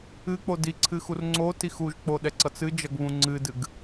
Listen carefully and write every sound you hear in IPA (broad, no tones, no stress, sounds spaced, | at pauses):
ɨ k͡p o d i ǀʰ ɨ x u r ŋ͡ǀ o t i x u ʒ k͡p o ɗ ɛ ǀ ʌ t͡s ɨ d͡ʒ ʌ ɡ β ũ ŋ͡ǀ ɨ d ɨ ɡ